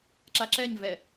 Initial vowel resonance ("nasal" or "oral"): oral